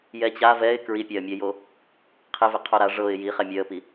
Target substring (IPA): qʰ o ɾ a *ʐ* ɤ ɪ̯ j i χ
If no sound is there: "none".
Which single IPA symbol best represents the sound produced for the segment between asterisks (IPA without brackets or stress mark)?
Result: ʐ